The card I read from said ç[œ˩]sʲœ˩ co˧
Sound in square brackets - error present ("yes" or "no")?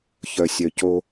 no